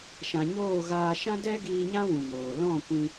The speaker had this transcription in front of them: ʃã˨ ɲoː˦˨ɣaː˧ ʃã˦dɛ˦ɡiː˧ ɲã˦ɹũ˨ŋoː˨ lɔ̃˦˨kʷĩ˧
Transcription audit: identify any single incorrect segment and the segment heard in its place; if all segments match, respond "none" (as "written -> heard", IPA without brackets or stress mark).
ɹ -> w